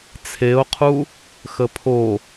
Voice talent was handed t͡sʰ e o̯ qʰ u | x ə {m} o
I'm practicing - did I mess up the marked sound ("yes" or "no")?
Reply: yes